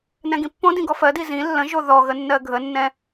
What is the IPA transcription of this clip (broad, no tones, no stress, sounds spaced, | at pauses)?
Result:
n ɛ̃ ɡ ĩ pː õ d ĩ ɡ ɔ f ɜ d i z ĩ lː ə̃ ʒ o ð ɔ ɣ ə nː ɜ ɡʱ ə nː ɛ̃